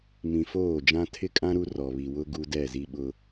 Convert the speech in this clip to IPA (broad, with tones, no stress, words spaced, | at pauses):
mĩ˨foː˦˨d͡ʒã˦ tʰɪ˦kʼã˦ ɾu˦ rɔ˨ βi˨wʊ˦ ɡu˦dɛ˦˨ zi˦ɓʊ˦